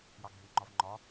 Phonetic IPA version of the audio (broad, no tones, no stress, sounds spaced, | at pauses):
j ɑ ɡʱ i w ŋ͡ǃ ɒ v ŋ͡ǃ ɒ